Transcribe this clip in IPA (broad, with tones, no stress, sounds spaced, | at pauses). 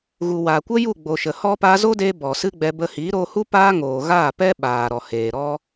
ɣ u˨ w aː˨ kʷ ə˦ j u˦˨ ɡ͡b o˨ ʃ ə˨ h ɔ˦ p aː˧ z o˦ d eː˧ b ɔ˨ s ɨ˦ ɡ͡b ɛ˧ b ə˧ h i˨˦ ɾ o˧ h u˦ p aː˦ ŋ oː˨ ɣ aː˦˨ p ɛ˦ ɓ aː˨ ɾ ɔ˨ h eː˨ ɾ ɔ˦